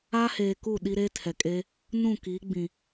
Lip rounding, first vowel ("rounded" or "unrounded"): unrounded